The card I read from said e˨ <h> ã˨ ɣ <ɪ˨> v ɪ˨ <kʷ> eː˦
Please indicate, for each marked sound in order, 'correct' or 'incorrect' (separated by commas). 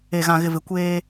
incorrect, correct, correct